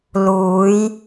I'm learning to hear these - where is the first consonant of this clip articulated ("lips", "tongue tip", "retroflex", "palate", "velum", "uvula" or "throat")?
tongue tip